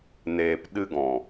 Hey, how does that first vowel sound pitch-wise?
low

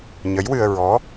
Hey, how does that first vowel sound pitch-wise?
rising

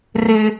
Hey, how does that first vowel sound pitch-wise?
high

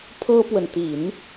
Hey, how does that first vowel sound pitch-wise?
high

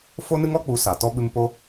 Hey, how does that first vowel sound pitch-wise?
high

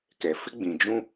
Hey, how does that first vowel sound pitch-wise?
low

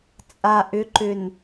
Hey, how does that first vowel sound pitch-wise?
low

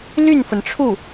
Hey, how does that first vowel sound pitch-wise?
falling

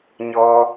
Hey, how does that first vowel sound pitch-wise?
high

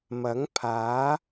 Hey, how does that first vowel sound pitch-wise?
rising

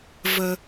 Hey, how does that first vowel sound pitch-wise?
low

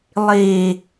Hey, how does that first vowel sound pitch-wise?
low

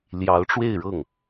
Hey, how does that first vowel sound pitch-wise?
rising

